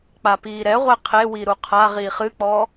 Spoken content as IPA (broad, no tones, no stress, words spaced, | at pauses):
k͡papiːɾɛʁʷɛ qʰewi ɾuqʰaʁiːχ ɨk͡pɔ